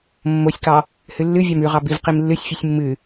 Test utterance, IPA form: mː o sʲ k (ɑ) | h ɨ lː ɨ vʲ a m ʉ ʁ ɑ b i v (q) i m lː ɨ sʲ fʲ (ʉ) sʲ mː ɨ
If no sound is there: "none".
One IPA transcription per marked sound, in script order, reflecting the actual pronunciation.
ɑ, q, ʉ

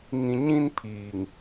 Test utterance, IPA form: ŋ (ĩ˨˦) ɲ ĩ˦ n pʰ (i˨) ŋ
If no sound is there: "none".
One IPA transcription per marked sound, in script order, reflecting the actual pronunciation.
ĩ˨, iː˨

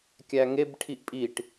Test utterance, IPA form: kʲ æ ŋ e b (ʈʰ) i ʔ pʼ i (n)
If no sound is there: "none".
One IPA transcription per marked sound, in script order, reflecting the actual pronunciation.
ʈʰ, ʈ

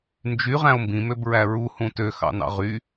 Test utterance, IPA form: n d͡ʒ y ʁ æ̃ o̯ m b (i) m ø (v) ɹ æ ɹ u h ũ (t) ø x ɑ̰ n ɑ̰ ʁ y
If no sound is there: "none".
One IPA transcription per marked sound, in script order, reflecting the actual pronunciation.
ĩ, b, t

